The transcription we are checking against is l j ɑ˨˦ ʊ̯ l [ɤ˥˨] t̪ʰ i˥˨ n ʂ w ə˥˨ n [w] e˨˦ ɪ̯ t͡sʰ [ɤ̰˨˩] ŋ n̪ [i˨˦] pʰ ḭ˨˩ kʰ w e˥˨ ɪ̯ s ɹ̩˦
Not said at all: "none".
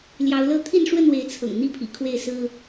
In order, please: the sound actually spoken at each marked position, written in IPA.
ɤ˥˨, w, ɤ̰˨˩, i˦

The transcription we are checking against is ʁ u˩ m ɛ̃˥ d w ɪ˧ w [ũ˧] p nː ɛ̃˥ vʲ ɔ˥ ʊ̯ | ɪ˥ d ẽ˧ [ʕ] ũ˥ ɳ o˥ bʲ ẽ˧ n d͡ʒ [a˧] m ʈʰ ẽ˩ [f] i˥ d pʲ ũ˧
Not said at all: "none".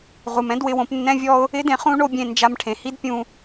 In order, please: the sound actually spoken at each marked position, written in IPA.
õ˧, χ, a˧, h

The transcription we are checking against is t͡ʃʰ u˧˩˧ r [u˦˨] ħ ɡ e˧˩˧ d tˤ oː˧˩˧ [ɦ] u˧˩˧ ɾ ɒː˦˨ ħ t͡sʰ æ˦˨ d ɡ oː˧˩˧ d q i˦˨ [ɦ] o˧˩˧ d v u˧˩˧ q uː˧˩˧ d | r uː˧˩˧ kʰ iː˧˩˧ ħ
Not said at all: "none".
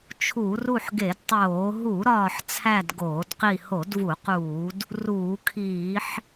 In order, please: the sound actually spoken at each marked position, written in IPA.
u˦˨, ɦ, h

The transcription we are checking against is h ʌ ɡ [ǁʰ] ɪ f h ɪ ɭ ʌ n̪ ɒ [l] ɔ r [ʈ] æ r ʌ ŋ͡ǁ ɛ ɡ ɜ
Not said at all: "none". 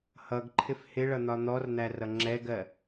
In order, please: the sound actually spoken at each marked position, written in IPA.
ǃʰ, n̪, n̪

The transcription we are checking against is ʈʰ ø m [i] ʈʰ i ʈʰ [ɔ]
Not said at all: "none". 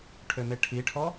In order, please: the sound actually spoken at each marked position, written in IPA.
e, ɔ

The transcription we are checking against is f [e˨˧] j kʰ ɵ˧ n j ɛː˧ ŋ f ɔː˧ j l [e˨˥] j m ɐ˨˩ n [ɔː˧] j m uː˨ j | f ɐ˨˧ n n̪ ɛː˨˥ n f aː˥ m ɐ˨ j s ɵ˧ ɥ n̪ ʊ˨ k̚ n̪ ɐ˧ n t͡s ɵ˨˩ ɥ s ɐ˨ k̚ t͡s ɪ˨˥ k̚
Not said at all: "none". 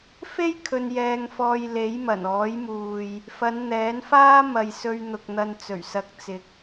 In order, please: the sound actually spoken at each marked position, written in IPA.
e˥, e˨˥, ɔː˨˥

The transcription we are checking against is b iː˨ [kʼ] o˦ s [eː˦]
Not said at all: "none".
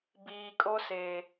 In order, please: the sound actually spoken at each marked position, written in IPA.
kʼ, eː˨

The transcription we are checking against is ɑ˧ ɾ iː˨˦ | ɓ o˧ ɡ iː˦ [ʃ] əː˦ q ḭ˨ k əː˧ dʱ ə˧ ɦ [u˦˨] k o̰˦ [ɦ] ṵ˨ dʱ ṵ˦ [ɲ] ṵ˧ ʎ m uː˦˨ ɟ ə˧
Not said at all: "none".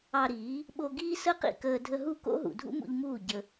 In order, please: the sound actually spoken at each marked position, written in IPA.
s, u˦˨, ɦ, m

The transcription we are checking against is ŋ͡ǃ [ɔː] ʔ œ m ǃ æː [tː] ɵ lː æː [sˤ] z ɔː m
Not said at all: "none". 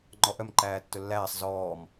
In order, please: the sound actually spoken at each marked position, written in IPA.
ɔ, tː, sˤ

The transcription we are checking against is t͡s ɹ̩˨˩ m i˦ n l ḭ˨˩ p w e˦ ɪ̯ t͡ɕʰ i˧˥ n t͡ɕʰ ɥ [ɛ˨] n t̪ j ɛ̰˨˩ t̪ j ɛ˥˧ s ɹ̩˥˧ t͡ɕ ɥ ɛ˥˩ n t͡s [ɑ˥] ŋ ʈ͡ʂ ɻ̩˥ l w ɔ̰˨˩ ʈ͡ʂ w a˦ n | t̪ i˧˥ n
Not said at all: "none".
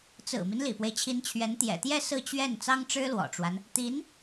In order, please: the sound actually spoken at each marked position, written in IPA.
ɛ˧˥, ɑ˥

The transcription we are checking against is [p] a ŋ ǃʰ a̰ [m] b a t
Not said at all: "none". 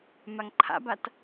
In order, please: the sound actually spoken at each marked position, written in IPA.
m, none

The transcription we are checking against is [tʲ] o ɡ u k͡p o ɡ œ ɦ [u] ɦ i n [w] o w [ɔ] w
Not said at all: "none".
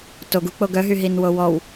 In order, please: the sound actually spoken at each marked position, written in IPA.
t, y, w, ɔ

